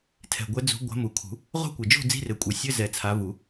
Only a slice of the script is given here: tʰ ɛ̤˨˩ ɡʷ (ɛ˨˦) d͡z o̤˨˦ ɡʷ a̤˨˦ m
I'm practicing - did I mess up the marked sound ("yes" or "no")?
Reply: no